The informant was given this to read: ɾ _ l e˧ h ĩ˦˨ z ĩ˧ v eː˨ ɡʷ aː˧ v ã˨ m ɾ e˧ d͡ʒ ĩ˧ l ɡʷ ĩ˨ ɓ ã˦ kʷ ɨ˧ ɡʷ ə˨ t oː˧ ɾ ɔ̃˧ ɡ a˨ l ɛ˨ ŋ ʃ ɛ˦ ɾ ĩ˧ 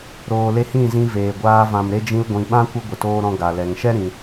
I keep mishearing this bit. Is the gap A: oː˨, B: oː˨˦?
A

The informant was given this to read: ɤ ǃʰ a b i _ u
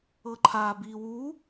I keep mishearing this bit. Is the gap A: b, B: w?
B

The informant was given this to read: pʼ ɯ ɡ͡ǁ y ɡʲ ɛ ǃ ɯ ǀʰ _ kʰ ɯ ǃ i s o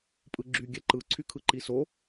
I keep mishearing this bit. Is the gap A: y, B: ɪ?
A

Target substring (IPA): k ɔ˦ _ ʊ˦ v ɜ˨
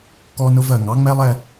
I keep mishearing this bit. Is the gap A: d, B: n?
B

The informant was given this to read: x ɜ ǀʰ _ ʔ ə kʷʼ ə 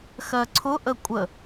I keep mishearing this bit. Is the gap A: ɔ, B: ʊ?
B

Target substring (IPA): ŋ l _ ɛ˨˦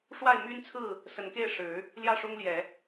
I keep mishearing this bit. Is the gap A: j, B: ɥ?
A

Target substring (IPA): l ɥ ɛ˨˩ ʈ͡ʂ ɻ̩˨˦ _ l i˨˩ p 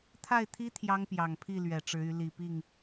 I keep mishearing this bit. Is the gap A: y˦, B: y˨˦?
B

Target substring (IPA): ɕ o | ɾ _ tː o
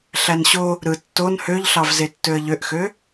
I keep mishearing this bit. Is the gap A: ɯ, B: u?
A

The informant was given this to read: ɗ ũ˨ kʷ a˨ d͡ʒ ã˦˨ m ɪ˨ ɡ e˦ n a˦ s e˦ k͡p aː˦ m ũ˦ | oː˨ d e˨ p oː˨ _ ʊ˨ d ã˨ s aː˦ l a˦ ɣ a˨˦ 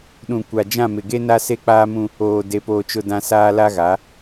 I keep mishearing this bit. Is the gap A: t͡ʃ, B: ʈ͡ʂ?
A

